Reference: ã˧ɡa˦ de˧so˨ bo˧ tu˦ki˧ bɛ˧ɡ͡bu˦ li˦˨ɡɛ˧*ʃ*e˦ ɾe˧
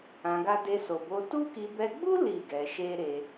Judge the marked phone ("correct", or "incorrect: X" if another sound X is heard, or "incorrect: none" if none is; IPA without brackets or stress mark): correct